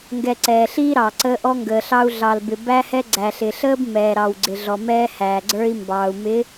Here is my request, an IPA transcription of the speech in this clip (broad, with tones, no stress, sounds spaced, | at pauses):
ŋ ɡ ɛ˨ ǀ ɛː˨ ɬ iː˦ ɾ ɑː˨ ǀ əː˦ ʔ ɔ˦ ŋ ɡ əː˨ ɬ ɑ˦ u̯ ɮ ɑ˨ l b ɪ˨ b æ˦ h ɛ˦ ɡ͡ǀ æ˨ ɬ ɪ˨ ɬ əː˦ b m ɛː˨ ɾ ɑ˨ w ɡ͡ǀ ɪ˨ ɮ ɔ˨ m ɛː˦ h æː˨ ɡ͡ǀ ə˞˦ i̯ m b ɑː˨ u̯ m ɪ˨˦